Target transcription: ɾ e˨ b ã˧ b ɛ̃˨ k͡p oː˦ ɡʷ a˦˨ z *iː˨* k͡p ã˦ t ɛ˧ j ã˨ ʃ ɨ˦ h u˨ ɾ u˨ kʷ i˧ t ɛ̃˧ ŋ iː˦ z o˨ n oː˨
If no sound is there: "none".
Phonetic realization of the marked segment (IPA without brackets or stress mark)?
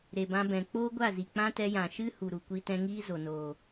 i˨